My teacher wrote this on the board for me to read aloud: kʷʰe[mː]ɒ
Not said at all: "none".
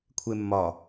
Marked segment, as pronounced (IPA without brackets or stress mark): mː